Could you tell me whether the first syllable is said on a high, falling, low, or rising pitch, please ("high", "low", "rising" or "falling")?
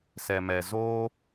low